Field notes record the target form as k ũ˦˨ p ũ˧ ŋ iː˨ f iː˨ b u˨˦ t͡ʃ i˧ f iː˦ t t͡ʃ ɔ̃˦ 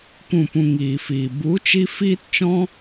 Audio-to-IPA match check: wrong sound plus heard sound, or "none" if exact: none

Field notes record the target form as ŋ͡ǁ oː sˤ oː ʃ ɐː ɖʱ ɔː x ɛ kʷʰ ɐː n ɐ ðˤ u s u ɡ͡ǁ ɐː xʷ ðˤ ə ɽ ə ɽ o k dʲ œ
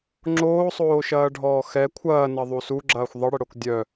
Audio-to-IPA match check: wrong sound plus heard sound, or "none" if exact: none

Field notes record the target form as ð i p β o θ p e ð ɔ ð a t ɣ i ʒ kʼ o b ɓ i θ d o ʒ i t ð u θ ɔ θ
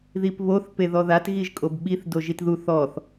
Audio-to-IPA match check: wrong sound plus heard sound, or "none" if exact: none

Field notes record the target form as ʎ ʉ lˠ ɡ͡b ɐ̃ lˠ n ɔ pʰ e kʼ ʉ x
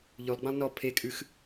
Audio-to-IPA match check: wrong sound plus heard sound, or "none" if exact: none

